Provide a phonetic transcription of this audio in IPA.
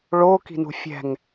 ɭ o k i̤ n ṳ fʲ ɛ̤ ŋ

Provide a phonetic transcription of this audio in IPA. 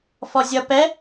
f ɔ zʲ ʌ p ɛ

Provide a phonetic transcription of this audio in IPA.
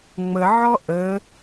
ŋ͡m ə ʕ ɔ ʔ ə

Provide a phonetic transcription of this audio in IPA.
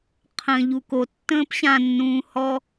qʰ ə̃ ʎ u k o tː ə̃ː p ɕ ã nː ũː h ɔ

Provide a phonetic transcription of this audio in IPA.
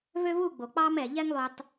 v ø˦ v u˦˨ ɡ͡b o˨ k͡p ɑ˦ m ɛ˨ ʎ ɛ˦ ŋ lˠ ʉ˨ tˤ

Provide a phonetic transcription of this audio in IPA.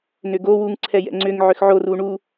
n ʏ ɡ o w u ŋ ǀʰ ɛ j ɛ̰ ŋ͡ǀ ʏ ŋ ʕ ʏ x ʕ o r u ɳ u

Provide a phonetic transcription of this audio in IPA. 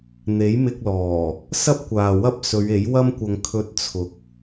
n̪ e˨˥ j m ɪ˧ k̚ l ɔː˨˩ | s ɐ˥ p̚ kʷ aː˨ w ɐ˥ p̚ s ɵ˨˧ ɥ e˨˥ j w ɐ˥ m kʷ ɐ˧ ŋ kʰ ɵ˧ t̚ t͡sʰ ʊ˨ k̚

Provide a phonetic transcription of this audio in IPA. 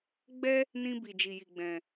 ɡ͡b ɛ˦ | n ĩ˦ b i˧ d͡ʒ i˧ j i˧ ɡ͡b ɛ̃˧

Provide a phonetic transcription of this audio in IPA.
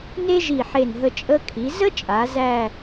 n e˥ ʒ i˧˩ ħ e˧˩ n ɦ ə˧ t͡ʃʼ ə˧ kʰ i˩˧ z ə˥ t͡ʃʼ a˩˧ z æ˥˧

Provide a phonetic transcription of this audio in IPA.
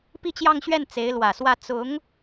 p i˥˧ t͡ɕ j ɑ˥˧ ŋ ɕ ɥ ɛ˥˩ n t͡s e˧˥ ɪ̯ l w ä˨˩ s w ä˥˩ t͡s ʊ˧˥ ŋ

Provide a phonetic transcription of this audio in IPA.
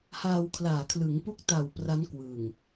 h aː˧ w kʰ l aː˨˩ kʰ l ɯ˩˦ ŋ p u˦˥ k̚ t a˨˩ w p r a˦˥ n k w ɯ˨˩ ŋ

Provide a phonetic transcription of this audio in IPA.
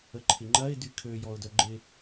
ə ǃʰ ɪ ŋ͡ǃ ɐ ɪ̯ d y kʰ ø j ɔ ʊ̯ d œ ɡ͡ǃ ɪ

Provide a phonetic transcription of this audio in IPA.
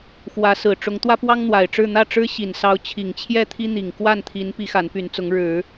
x w ä˧˥ s ɹ̩˨˩ ʈ͡ʂ ʊ˧˥ ŋ t̪ w ä˥ p w ɑ˥ ŋ n̪ w a˨˩ ɪ̯ ʈ͡ʂ ɻ̩˥˧ n̪ ä˥˩ ʈ͡ʂ ɻ̩˥ ɕ i˨˩ n s ɑ˧˥ ʊ̯ t͡ɕʰ i˨˩ ŋ t͡ɕʰ j ɛ˥˩ t̪ʰ i˥ n̪ i˨˩ ŋ k w a˥˩ n t̪ʰ i˧˥ n p i˧˥ x a˧˥ n p y˧˥ n t͡s ʊ˧˥ ŋ ɻ ɻ̩˨˩˦

